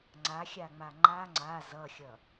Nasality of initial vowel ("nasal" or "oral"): oral